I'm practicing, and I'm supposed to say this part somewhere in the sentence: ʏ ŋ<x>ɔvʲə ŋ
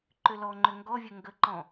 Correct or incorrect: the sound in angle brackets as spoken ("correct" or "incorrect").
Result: incorrect